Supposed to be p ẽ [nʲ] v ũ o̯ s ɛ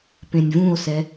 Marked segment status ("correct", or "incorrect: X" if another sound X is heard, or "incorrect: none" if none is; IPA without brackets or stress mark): correct